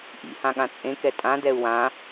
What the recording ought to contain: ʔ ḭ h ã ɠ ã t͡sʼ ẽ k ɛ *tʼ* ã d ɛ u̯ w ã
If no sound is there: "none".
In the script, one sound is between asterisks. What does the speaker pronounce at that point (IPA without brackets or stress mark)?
tʼ